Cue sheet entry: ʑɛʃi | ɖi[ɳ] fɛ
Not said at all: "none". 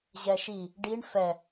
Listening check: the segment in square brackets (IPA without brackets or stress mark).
ɳ